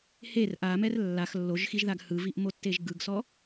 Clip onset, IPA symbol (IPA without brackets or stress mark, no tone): h